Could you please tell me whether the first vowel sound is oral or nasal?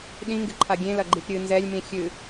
nasal